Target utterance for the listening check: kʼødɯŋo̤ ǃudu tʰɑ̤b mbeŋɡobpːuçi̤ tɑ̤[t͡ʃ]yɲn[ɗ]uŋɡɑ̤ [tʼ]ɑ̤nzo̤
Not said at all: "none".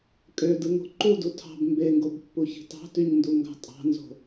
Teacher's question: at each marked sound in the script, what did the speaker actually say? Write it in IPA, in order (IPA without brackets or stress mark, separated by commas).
t, d, tʼ